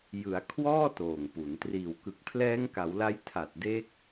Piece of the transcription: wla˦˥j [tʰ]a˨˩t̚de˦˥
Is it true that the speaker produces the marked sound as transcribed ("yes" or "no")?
yes